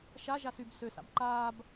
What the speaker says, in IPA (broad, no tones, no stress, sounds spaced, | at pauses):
ʃ a ʒ a s y b s ø s a̰ b ǃ aː b